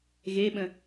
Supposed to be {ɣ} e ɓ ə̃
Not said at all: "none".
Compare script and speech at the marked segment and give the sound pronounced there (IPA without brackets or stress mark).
ɣ